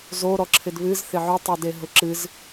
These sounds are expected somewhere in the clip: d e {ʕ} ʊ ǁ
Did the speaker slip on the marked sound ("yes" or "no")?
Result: yes